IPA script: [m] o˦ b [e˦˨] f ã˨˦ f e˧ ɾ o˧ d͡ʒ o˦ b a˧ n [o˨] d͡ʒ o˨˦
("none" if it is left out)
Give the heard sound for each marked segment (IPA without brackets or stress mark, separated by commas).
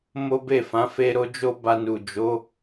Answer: m, e˦˨, u˨